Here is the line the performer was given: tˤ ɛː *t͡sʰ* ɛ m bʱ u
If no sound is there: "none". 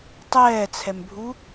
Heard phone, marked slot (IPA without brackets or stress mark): t͡sʰ